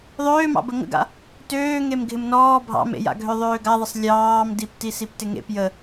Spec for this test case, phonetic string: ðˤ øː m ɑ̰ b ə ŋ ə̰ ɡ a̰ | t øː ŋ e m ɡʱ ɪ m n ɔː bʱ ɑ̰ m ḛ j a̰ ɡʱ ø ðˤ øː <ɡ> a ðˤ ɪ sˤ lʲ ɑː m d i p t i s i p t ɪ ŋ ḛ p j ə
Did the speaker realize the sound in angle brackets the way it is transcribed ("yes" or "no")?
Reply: yes